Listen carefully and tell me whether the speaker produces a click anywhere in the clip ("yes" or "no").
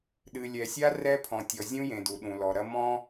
no